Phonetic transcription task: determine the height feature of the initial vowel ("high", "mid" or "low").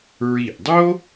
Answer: high